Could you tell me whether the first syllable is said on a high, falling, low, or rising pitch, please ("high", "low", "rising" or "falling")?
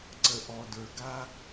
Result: low